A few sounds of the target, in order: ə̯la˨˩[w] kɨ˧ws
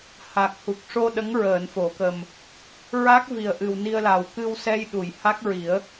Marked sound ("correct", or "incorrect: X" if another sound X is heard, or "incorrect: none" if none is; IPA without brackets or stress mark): correct